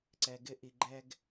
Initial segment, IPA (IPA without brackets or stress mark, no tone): ǀ